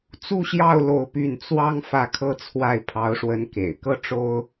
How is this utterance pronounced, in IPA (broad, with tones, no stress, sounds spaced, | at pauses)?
t͡s u˥˧ ɕ j ɑ˥˧ ʊ̯ l o˥˧ ʊ̯ p y˥˩ n t͡s w ɑ˥ ŋ f ä˥˩ kʰ ɤ˥ t͡sʰ w a˥˩ ɪ̯ pʰ ɑ˧˥ ʊ̯ ʂ w ə˧˥ n k ḛ˨˩ ɪ̯ k ɤ˥ ʈ͡ʂ o˥ ʊ̯